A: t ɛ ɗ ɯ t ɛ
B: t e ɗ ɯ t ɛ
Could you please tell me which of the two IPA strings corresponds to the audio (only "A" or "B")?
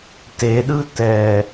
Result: B